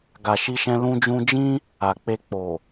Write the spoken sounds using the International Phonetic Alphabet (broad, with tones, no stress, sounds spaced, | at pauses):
ɡ a˨ ʃ i˧ ʃ ɛ̃˧ l ũ˧ d͡ʒ ũ˧ d͡ʒ ĩ˦ | a˨ k͡p e˧ k͡p o˨